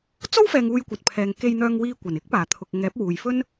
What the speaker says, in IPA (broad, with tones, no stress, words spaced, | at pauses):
t͡so˥wfɛː˨ŋ uː˧jkʷɐ˨t̚pʰɛː˨ŋ ke˧jn̪œː˧ŋwiː˧kʷɐ˨˩n ɪ˥k̚paː˨˩t̪ʰʊ˨k̚ ŋɛː˨˥p̚wuː˨j fɵ˥n